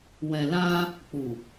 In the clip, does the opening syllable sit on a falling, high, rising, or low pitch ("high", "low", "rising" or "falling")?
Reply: low